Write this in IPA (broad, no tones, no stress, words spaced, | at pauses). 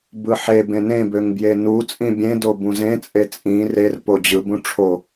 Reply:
bɯħe bẽnẽbøŋ bjenu t͡sʼĩbʲẽdo bũzẽt͡sʼe t͡sʼĩ rerpo d͡ʑɯbũ ʈ͡ʂʰo